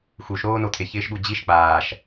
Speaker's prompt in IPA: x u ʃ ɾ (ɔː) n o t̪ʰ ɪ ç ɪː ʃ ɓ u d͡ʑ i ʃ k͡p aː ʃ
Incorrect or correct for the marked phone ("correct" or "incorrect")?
incorrect